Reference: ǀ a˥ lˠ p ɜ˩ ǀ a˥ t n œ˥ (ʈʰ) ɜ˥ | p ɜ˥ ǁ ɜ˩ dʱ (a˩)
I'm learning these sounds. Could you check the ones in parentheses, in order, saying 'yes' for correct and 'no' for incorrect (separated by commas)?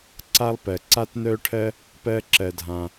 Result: yes, no